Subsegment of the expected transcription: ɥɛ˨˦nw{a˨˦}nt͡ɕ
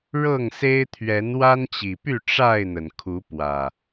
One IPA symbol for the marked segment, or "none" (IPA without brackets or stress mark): a˦